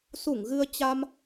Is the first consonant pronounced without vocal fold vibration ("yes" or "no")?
yes